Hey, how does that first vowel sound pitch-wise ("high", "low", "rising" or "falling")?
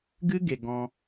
high